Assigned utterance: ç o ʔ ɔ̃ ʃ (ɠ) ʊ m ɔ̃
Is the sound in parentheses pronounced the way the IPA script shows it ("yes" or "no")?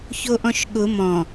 yes